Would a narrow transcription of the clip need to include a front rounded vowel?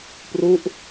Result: no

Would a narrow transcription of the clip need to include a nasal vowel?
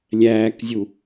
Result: no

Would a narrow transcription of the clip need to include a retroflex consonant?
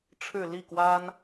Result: yes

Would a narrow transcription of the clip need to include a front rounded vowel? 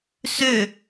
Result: yes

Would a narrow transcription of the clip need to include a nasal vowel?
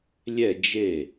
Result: no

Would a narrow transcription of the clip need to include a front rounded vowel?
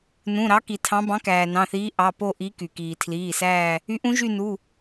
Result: yes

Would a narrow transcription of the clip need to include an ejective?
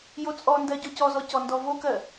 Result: yes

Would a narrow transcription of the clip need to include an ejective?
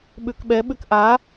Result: no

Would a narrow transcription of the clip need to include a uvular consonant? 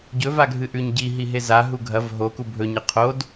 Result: yes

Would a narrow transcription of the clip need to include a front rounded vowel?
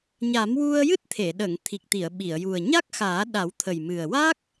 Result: no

